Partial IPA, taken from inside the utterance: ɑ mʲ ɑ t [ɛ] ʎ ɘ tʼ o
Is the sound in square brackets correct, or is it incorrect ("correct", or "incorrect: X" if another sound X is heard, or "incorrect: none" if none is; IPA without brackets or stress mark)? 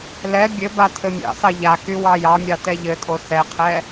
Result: correct